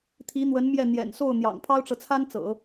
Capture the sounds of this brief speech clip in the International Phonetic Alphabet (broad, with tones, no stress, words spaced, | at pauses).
t̪ʰi˧˥n̪wə˧˥n mjɛ˥˩ n̪jɛ̰˨˩n so˥˩ʊ̯ n̪jɑ̰˨˩ŋpʰɑ˥ʊ̯ʈ͡ʂɤ˨t͡sʰa˥n t͡sɤ̰˨˩˦